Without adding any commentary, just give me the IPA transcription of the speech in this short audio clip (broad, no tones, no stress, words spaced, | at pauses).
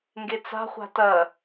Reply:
ŋɡet͡sa̤χʷa̤ tɐ